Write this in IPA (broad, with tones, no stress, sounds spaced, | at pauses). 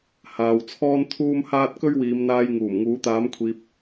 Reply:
h aː˨ w t͡sʰ ɔː˥ n t̪ʰ uː˥ m h aː˥ t̚ k ɵ˥ ɥ w iː˨˧ m n̪ aː˧ j ŋ uː˨˩ m ŋ uː˨˥ t̪ aː˨˥ m kʷʰ iː˨ p̚